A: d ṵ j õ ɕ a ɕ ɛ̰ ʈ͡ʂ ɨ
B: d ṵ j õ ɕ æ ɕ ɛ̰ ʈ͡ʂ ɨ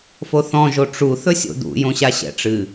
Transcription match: A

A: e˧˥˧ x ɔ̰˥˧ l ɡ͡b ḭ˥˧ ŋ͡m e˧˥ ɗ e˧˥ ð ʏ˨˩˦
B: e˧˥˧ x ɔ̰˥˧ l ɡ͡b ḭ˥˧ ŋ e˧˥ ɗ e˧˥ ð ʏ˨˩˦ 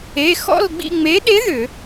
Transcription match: A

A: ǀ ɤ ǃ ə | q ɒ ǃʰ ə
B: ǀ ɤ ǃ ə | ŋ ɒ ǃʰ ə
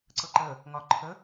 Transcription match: B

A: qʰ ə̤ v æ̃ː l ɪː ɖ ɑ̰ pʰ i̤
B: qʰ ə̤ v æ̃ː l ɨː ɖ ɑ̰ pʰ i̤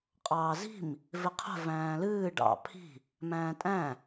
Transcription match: B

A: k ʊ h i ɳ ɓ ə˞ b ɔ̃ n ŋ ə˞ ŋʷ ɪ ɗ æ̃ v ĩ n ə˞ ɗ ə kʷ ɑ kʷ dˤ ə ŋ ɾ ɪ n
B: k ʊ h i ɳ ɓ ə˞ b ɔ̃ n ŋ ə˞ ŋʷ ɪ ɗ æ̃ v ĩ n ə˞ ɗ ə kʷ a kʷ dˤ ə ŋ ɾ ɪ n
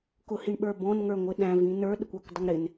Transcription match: A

